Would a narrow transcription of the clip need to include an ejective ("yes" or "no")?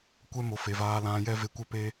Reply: no